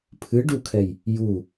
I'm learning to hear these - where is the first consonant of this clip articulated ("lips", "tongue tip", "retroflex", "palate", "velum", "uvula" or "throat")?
lips